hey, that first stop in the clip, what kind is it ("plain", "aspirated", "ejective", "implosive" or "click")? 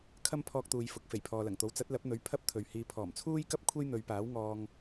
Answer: aspirated